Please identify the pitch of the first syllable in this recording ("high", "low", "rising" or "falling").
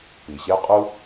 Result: low